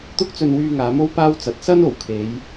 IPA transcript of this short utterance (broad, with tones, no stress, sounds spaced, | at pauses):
t̪ ʊ˥ k̚ t͡s ɵ˧ n w yː˧ ŋ aː˨˧ m o˥ w p aː˥ w t͡s ɐ˨˥ t̚ s ɐ˥ n o˨˩ w kʰ e˨˧ j